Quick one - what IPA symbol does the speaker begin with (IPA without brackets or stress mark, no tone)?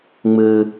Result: ŋ͡m